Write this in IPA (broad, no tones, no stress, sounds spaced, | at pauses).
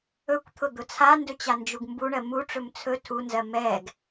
ɵ kʷ t̪ʰ ʊ d̪ ʊ t͡sʰ a n d ɵ t͡ɕ a n d͡ʒ u ɡ m b u ɳ ɜ m u ʈ͡ʂ ɵ m t͡sʰ ɵ tʰ u n z ɜ m ɛ ɡ